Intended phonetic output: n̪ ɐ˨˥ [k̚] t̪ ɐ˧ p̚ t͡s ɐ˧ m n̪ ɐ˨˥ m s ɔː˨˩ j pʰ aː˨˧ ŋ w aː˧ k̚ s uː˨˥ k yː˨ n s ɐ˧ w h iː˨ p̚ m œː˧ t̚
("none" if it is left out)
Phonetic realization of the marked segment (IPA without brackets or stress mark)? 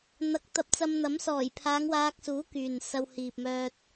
k̚